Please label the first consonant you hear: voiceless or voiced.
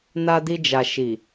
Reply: voiced